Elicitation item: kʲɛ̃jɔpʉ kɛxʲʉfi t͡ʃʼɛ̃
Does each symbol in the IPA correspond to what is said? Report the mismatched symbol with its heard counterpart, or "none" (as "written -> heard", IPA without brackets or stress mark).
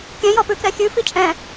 none